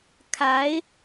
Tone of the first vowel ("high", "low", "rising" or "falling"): rising